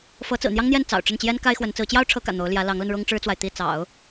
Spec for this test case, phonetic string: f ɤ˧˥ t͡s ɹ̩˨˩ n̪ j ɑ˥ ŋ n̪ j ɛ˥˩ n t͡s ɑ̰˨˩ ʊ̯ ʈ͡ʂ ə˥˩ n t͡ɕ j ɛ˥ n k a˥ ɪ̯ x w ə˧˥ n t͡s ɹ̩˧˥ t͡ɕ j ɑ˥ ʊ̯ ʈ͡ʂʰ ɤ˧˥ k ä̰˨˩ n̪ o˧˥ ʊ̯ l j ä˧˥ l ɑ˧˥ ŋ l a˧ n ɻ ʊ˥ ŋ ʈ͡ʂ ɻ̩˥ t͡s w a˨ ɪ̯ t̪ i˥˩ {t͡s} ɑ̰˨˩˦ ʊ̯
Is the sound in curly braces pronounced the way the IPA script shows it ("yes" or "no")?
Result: yes